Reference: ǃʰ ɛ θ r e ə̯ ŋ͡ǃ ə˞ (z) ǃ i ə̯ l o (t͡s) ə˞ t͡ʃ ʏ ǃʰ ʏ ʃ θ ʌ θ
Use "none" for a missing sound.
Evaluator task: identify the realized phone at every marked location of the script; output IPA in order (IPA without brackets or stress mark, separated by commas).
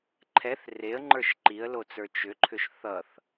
ʃ, t͡s